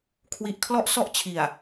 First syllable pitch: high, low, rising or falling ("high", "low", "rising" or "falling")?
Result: low